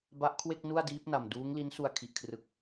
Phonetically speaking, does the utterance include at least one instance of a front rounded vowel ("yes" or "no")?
no